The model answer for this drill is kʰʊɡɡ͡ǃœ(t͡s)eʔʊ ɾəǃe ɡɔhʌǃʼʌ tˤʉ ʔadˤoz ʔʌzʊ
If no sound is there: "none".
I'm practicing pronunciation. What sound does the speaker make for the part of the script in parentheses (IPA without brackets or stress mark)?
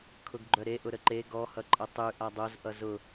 ɾ